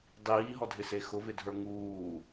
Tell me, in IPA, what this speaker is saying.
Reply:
dˤ iː ɦ ɔ dʱ ɪ s e x ʊ v ɪ dʱ ə˞ ŋ uː

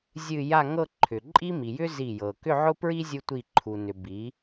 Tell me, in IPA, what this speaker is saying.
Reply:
zʲ ɨ˥˧ j a˥˧ ŋ ɤ˥˧ ǃʰ ʏ˩ ǃʼ i˥ m i˩ j ʏ˥ z i˧˩ j ɤ˩ k ʏ˥˧ ʕ ʊ˥ p ɹ i˥ zʲ u˥ tʷ i˧˩ ǃʰ u˩ n ʏ˩ b i˩˧

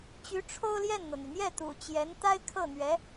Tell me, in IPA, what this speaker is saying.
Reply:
t͡ɕ y˧˥ ʈ͡ʂʰ o˥ ʊ̯ l j ɛ˥˩ n n̪ ɤ˩ n̪ y˩ n̪ j ɛ˥˩ t̪ ṵ˨˩ t͡ɕ j ɛ˧˥ n t̪ a˥ ɪ̯ kʰ ɤ˥˩ n̪ ɥ ɛ˧˥

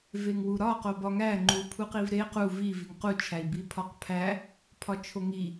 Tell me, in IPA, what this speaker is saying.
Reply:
v e ŋ w u ɾ ɒ q o b ɒ ŋ æ ŋ͡ǃ u pʰ u q i v ɾ e q u v i v i ŋ q u t͡ʃʰ æ i̯ b i pʰ ɒ q pʰ æ | pʰ ɒ t͡ʃʰ o ŋ i

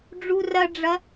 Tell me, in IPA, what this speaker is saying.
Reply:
ɖ͡ʐ u r ɐ ɖ͡ʐ ɐ

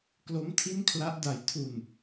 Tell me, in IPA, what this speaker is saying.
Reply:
k l o˦˥ m tʰ i˥˩ n kʰ l a˦˥ ʔ d a˨˩ j tʰ u˨˩ n

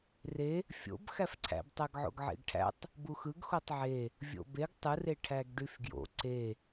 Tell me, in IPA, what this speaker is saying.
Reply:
r e | fʲ o̰ b x æ f ǀʰ æ̰ b tˤ æ ɡ ʕ o̰ ɡ ʕ ḛ ɡ ʈʰ æ̰ tˤ | b u x ɯ ɡ x o tˤ ʕ e | vʲ o̰ b e ɡ tˤ ɯ r e ʈʰ æ ɡ ɖ y f ɡ j o̰ ǀ e

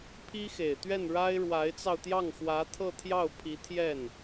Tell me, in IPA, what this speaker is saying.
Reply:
pʰ i˥ x e˨˩ ɪ̯ t̪ ɥ ɛ˥˩ n ɻ a˥ ɪ̯ ɻ w a˧˥ ɪ̯ t͡s ɑ˧ ʊ̯ t̪ j ɑ˥˩ ŋ x w ä˧˥ t̪ʰ ɤ˥˧ t̪ʰ j ɑ˥˩ ʊ̯ pʰ i˧˥ t̪ʰ j ɛ˥˩ n

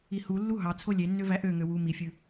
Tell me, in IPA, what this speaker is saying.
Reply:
i h u lː u ɦ ɑ t͡sʰ o lʲ e nː ø v æ ʔ ø ŋ ø w u m i fʲ ɯ

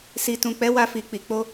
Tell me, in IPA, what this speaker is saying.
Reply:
s i˨ t ũ˨ k͡p ɛ˨˦ w a˧ f i˨ k͡p i˨ k͡p o˧

